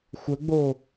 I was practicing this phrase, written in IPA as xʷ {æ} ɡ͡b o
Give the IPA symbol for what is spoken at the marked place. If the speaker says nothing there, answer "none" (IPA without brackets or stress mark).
ə